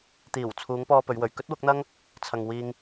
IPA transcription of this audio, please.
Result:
t̪ iː˨˩ w t͡sʰ uː˨˧ ŋ p ɔː˧ p ɵ˨˧ ɥ w ɵ˨ ɥ k ɵ˥ t̚ w ʊ˨˥ k̚ n̪ ɐ˥ ŋ | t͡sʰ ɐ˨ ŋ w iː˧ ŋ

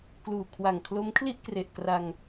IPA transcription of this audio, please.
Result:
k l uː˨˩ kʰ w a˨˩ ŋ kʰ l o˦˥ m kʰ l i˥˩ ʔ k r e˨˩ ʔ k r a˧ ŋ

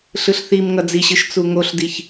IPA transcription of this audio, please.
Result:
ɬ ɯ ɬ θ i m ŋ ʌ d͡z i ɕ ɯ ʃ t͡s u ŋ o ɬ d i ç

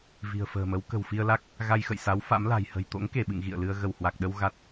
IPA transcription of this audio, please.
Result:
v i̤˨˩ ə̯ f ə̤ː˨˩ m ə˨˦ w k ə̤˨˩ w f i˧ ə̯ l a˦˥ k̚ | ɣ a˧ j x ə̰˧˨ j s a˨˦ w f a̰˧˥ m l a̤˨˩ j h ə̤˨˩ j t̪ o̰˧˥ ŋ k e˧˩ ɓ ɨ̰˧˨ ŋ ɣ ḭ˧˨ ə̯ l ɨ˧ ə̯ ɣ ə˧˩ w h w a˨˩ k̚ ɗ ə˧ w ɣ a˦˥ t̚

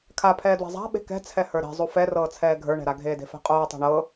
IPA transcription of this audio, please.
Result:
kʰ a pʰ ɛː d w e̤ zˤ a̤ ɓ e̤ k ɛ̤ t͡sʰ ɛ h ə˞ ɾ e̤ zˤ u f ɛ r ɤː t͡sʰ ɛː ɡʱ ə˞ ɳ ɛ̤ ɾ a ɡʱ eː d e̤ f ɛ̤ qʼ oː tˤ ɛ̤ ɳ ɤ

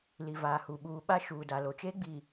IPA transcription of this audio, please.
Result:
l i˨ v aː˨ h u˨ ɓ uː˨ ɓ a˦ ʃ uː˨ d a˨ l o˨ t͡ʃ eː˦ ɡ͡b i˨

